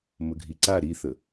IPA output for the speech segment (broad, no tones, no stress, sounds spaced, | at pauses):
m ə ɡʱ i ǀ a ɾ i θ ə